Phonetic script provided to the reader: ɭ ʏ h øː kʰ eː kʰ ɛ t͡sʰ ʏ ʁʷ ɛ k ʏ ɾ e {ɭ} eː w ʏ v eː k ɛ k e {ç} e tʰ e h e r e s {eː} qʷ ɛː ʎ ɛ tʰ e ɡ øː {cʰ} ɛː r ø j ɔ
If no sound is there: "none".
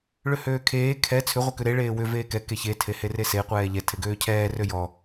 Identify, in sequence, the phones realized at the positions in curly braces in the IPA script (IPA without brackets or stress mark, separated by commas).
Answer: ɭ, ç, e, cʰ